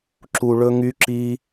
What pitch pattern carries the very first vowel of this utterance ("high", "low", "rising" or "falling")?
low